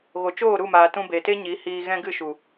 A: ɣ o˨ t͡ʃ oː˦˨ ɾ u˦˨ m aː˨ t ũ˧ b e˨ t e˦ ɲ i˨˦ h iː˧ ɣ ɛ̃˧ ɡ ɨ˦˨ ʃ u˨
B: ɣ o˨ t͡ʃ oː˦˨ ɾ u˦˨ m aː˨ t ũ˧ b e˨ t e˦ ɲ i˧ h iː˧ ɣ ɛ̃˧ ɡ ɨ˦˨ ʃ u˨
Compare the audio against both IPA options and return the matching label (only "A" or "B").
A